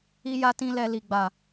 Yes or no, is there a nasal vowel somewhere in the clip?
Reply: yes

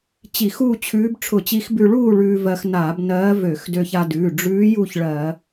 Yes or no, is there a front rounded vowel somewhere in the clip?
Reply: yes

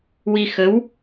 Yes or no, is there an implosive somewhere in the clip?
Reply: no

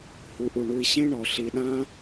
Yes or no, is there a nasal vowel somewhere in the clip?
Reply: yes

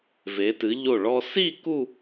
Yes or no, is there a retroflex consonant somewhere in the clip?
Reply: yes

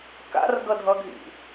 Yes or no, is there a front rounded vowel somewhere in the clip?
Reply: no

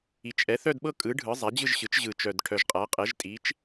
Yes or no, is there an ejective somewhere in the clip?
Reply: yes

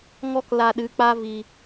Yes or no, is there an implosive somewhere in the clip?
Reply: yes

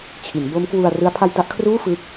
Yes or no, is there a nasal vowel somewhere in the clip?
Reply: no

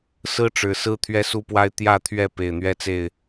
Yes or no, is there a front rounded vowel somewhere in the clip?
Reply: no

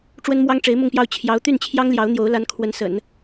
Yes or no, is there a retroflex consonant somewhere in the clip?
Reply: yes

